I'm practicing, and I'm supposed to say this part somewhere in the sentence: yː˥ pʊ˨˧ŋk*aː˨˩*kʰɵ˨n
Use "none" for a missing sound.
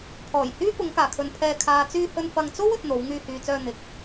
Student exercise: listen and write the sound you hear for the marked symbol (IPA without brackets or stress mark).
aː˨˩